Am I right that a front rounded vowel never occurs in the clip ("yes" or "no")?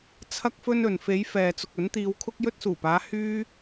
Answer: no